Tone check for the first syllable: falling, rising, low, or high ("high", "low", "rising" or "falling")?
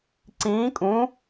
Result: rising